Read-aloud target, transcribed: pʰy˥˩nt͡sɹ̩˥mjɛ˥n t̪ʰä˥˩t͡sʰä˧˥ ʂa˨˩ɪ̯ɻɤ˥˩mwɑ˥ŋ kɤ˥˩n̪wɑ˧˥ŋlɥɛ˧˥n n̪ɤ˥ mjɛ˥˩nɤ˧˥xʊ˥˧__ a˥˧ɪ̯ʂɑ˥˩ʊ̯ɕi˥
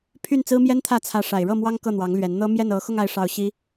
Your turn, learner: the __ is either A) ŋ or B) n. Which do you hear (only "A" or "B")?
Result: A